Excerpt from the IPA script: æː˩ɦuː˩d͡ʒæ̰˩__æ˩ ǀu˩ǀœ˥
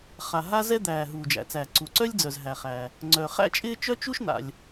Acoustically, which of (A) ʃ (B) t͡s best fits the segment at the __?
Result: B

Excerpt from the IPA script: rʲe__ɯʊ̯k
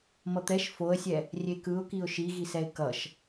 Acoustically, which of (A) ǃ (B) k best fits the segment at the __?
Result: B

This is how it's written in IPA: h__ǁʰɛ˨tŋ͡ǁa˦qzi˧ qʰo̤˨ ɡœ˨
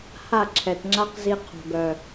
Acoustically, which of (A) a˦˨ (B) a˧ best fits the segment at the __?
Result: A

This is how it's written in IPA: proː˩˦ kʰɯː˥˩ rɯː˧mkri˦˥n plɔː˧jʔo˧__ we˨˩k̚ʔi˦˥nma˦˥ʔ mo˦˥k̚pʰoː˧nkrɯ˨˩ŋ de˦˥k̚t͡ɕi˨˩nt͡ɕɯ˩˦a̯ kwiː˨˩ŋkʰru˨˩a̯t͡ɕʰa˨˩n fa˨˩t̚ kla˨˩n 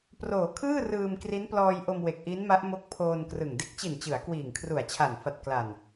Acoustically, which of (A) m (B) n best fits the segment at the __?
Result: A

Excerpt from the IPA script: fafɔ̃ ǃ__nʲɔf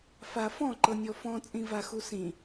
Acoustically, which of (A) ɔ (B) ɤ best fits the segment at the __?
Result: B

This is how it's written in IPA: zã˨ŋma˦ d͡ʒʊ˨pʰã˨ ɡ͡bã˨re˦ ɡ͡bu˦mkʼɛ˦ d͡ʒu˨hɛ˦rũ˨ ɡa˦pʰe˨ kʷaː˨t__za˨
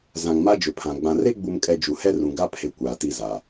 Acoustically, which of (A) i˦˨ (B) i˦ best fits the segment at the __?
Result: A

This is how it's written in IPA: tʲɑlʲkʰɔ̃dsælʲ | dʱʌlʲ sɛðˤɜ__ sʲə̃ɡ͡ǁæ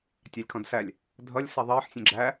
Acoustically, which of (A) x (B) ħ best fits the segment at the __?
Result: B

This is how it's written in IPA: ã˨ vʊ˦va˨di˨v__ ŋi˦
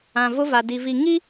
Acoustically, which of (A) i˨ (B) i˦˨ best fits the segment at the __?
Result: A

